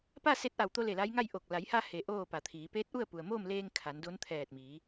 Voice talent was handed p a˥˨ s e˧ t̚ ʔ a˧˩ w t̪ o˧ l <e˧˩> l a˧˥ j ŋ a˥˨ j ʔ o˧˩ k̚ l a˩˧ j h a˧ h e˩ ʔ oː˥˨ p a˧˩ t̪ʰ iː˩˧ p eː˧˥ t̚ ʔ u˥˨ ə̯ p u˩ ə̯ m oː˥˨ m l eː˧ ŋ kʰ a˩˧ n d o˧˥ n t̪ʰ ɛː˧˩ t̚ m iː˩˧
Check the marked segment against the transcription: correct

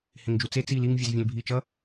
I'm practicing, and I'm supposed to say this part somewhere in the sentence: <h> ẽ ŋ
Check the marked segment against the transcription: correct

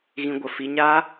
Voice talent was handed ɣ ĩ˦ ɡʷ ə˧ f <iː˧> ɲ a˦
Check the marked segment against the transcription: incorrect: i˧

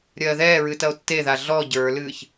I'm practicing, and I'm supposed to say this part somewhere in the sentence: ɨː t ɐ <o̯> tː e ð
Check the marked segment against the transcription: correct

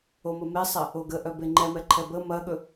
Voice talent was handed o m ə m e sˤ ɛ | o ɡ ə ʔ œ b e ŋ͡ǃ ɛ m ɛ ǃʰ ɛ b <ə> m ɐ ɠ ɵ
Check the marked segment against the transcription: correct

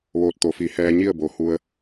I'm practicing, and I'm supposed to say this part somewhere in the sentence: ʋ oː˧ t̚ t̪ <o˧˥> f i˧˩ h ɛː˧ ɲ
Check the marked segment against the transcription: incorrect: o˧˩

